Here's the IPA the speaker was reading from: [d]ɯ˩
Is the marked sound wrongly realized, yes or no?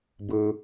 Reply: yes